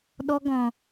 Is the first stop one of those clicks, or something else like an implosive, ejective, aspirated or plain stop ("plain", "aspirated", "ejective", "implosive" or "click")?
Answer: implosive